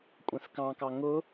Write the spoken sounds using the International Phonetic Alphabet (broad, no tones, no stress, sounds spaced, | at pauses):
kʷʼ ɛ̃ θ k ɑ̃ k ɑ ŋ ʊ